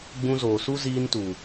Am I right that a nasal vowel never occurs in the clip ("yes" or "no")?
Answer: no